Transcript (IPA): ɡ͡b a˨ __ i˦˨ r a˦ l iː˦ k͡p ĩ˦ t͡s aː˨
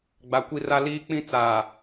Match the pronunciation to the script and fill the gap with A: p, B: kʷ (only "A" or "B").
B